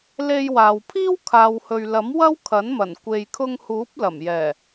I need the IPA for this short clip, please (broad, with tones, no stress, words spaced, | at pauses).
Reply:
le˧jwaː˨wpʰiː˥w kʰaː˨whɵ˨ɥlɐ˨˥m wɐ˥wkʰɐ˨˥nmɐ˨˩n kʷe˨jkʰʊ˧ŋhuː˨˥p̚ lɐ˨˩mjɛː˨˩